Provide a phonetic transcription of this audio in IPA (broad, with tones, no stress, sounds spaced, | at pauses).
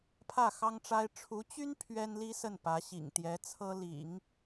pʰ ä˥˩ x ɑ˥ ŋ ʈ͡ʂ a˥ ɪ̯ ʈ͡ʂʰ u˧˥ t͡ɕ y˥ n pʰ ɥ ɛ˥ n l i˥ s ə˥˩ n p ä˧˥ ɕ ḭ˨˩ ŋ t̪ j ɛ˧˥ t͡sʰ ɤ˥ l ḭ˨˩˦ ŋ